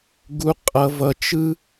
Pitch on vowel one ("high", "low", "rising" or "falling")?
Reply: low